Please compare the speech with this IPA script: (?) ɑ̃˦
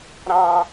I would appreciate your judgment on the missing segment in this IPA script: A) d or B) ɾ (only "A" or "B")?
B